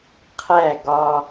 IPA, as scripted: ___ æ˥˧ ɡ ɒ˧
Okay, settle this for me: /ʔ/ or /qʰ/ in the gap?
qʰ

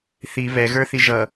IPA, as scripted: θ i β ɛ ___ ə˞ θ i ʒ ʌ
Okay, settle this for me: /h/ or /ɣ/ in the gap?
ɣ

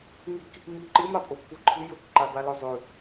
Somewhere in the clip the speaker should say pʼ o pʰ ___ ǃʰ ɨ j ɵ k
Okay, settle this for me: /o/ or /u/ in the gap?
u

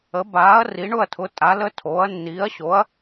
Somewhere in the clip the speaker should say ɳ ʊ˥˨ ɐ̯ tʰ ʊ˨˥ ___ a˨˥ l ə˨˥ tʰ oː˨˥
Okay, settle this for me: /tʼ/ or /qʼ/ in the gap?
tʼ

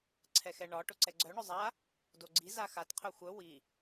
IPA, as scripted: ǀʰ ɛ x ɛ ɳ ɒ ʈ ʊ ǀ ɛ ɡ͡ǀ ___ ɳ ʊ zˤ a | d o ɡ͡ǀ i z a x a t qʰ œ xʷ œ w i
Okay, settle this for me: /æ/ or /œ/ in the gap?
œ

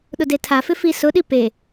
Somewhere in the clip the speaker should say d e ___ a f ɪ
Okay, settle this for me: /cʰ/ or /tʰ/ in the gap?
tʰ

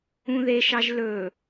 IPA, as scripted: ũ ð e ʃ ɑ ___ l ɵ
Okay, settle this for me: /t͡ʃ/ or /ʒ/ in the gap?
ʒ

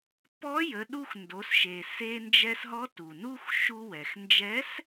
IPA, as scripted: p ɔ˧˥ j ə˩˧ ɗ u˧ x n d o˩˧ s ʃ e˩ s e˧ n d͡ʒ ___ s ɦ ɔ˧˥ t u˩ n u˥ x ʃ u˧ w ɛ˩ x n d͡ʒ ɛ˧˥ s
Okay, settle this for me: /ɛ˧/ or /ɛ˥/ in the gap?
ɛ˧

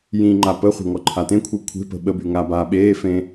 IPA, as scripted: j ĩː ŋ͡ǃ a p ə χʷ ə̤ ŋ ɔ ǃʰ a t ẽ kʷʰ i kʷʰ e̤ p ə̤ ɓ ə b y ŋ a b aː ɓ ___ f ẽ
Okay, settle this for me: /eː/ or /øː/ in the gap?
eː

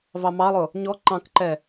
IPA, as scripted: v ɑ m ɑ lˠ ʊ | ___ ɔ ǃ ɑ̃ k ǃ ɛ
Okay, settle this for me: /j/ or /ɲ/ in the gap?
ɲ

